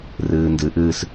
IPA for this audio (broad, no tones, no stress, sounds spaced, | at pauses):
r ɨː n d ɨ ʔ ɨː s